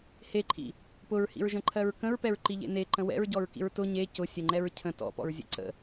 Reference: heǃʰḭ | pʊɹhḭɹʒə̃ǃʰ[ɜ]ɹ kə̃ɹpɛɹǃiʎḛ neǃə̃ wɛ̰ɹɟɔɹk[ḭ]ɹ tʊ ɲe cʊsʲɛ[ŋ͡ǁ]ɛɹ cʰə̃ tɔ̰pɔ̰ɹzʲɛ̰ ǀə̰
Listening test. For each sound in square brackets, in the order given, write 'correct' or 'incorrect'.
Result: correct, correct, incorrect: ŋ͡ǃ

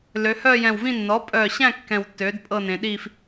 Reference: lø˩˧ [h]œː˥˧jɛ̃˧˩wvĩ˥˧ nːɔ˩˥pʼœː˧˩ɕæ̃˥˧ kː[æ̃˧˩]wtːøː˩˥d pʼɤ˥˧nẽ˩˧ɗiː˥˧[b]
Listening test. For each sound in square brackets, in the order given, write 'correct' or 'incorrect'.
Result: correct, incorrect: ɛ̃˧˩, incorrect: f

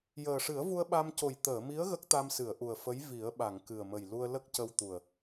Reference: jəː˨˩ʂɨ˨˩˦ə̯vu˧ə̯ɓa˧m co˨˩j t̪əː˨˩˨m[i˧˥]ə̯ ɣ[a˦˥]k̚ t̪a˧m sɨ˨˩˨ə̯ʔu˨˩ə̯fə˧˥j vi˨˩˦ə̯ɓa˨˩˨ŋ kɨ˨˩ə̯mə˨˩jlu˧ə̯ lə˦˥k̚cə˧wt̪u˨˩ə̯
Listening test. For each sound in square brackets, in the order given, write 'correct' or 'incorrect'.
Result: correct, incorrect: ə˦˥

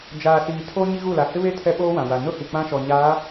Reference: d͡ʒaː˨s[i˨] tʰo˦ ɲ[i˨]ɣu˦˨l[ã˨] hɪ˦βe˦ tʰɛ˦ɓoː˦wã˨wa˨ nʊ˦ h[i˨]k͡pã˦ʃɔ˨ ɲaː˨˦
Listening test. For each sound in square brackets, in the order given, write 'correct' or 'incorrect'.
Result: incorrect: iː˨, incorrect: i˦, incorrect: a˨, correct

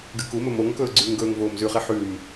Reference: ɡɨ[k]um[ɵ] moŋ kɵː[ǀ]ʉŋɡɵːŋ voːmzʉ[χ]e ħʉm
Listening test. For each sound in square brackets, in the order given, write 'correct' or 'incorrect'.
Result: correct, correct, incorrect: ɡ͡ǀ, correct

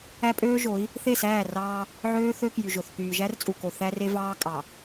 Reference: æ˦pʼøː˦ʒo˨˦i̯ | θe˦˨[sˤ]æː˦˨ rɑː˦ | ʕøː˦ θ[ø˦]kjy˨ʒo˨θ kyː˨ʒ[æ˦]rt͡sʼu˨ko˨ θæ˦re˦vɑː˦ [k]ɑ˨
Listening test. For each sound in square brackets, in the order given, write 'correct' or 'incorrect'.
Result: incorrect: s, correct, correct, incorrect: kʼ

